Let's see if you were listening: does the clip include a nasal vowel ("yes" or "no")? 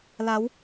no